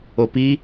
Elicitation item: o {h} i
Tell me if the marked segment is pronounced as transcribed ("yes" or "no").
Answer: no